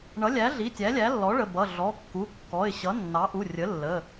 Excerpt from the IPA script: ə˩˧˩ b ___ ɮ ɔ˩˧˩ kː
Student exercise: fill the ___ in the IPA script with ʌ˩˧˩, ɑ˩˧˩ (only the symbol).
ʌ˩˧˩